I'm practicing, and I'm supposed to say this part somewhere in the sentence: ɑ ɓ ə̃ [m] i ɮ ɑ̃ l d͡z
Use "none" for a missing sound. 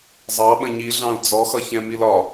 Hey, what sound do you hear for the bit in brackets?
ɲ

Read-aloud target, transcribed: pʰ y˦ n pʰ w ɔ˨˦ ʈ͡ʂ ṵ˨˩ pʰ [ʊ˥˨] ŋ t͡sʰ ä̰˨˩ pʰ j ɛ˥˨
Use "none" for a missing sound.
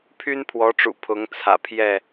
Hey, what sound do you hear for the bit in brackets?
ʊ˨˦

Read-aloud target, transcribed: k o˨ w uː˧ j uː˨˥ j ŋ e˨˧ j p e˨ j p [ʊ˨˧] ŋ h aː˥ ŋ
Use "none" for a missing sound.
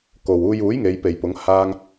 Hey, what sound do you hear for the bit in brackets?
ʊ˨˧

